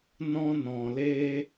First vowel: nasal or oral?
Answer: nasal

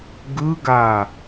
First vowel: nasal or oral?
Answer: oral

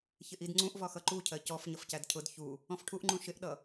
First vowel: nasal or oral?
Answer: oral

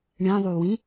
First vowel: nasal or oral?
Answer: nasal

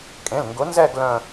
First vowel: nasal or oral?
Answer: nasal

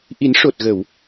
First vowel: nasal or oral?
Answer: oral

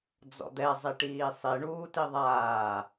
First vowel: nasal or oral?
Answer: oral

